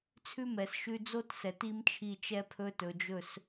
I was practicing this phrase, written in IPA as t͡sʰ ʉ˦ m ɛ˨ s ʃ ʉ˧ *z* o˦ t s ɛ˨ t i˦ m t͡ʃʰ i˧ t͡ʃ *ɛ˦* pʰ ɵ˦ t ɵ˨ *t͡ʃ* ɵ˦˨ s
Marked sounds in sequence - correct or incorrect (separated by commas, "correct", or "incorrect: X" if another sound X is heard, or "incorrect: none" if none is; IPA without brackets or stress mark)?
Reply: incorrect: d͡z, correct, incorrect: d͡ʒ